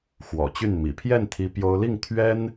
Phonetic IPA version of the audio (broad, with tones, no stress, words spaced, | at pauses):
xwɔ̰˨˩t͡ɕy˥˩nmḭ˨˩ pʰjɛ˥˩nt̪ʰi˧˥ pjo˥ʊ̯ li˥˩ŋ t̪ʰɥɛ˥n